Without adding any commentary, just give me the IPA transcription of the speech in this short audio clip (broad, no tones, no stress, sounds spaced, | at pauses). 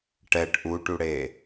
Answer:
ʈ ɛ ʈ ʔ u ʈ u ɽ e